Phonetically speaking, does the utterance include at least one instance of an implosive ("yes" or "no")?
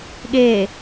yes